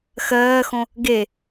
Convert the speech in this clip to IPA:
xɜːxõ | ɡe

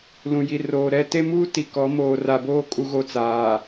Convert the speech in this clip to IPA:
lũ˨ji˨roː˨ɾɛ˦ te˦muː˦ti˨ kɔ˨˦ moː˨ra˨boː˦ kʼu˦ɣo˦t͡saː˨

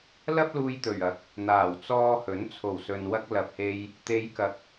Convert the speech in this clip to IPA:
lɐ˥p̚luː˧jt̪ɵ˨˩ɥ ɐ˨˥k̚ | n̪aː˨˩wt͡sɔː˧hɵ˨˥n t͡sʰo˨˩wsɵ˨nwɐ˧k̚ lɐ˨p̚he˧j | t̪e˨˧jkɐ˨˥k̚

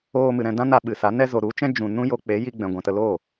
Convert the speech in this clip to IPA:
oː˧mɨ˨ ɾɛ̃˧ dã˦na˧ ɓɨ˨sa˨˦ nɛ˧zo˨ ɾu˨˦t͡ʃɛ̃˦ d͡ʒũ˧ nũ˦ jo˧k͡pe˨˦ji˧ɡ͡bɛ̃˨ ɡʷɛ̃˨tə˧ loː˦˨

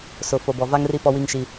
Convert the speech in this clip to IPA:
sʊ˨ fo˨bɔ˨va˦ŋri˦ pɔ˦wi˦ŋʃi˦

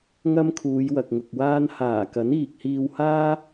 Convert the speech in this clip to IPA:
ŋɐ˥mkʰuː˨˧j wɐ˨k̚ŋʊ˨k̚waː˥n haː˨˩kɐ˨˥n iː˨k̚hiː˧whaː˥

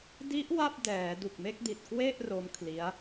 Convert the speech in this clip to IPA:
di˦˥ʔ wa˥˩p̚dɛː˩˦du˨˩k̚ me˥˩k̚di˨˩t̚ kwe˥˩ʔ ro˦˥mkʰli˦˥a̯

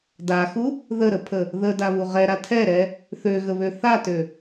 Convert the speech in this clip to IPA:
daxu | ðəɾəpʰə | ðədaβu ʁɛɾa tʰɛɾɛ | θøɣəβø θatø

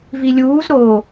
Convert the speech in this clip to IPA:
vilʲuːz ɾo

